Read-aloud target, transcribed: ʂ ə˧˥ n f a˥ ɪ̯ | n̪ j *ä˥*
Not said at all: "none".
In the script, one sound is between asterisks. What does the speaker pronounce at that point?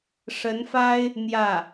ä˥˩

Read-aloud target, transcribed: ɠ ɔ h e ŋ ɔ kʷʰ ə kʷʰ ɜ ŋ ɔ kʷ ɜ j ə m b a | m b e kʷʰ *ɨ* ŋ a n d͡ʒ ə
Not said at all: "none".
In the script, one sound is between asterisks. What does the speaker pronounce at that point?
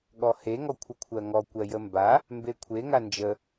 e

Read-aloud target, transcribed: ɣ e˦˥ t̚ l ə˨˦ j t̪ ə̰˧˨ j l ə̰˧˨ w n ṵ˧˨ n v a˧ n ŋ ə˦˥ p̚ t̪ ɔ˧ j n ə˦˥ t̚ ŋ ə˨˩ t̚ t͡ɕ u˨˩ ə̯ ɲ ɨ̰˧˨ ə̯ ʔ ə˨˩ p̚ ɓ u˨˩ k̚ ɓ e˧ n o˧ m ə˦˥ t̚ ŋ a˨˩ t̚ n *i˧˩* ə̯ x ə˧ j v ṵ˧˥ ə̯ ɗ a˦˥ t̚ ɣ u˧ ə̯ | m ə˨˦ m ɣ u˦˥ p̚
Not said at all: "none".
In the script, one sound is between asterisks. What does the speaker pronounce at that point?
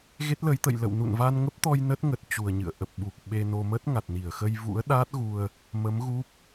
i˧˩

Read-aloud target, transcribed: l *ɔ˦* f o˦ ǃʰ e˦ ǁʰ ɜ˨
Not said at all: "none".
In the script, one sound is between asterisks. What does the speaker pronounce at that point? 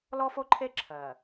ɔ˦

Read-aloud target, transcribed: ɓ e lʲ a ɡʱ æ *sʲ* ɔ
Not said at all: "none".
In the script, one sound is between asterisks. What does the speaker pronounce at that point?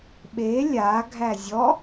zʲ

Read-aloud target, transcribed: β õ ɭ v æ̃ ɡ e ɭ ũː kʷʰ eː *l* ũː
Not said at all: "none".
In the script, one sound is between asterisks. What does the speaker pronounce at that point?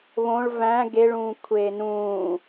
n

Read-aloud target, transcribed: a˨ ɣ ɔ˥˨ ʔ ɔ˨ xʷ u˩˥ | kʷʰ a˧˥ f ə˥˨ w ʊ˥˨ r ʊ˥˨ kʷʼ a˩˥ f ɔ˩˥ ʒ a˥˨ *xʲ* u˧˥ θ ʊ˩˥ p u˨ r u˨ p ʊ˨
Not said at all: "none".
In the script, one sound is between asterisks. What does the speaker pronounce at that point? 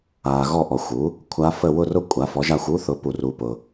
xʷ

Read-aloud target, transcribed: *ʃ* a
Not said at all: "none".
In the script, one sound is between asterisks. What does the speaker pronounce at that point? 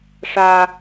ʂ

